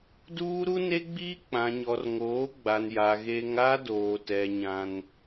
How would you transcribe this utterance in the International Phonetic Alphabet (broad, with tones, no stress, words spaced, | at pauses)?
duː˦ɾu˦ne˦ɡ͡biː˦ k͡pã˨ɲɔ˨rŋoː˨˦ ɡ͡ba˨nja˨ ɣe˦ŋ a˦doː˨tɛ˨ ɲã˦n